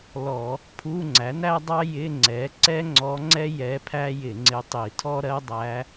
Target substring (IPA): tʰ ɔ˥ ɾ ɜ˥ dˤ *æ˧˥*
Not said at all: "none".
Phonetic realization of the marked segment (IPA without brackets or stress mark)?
æ˧˥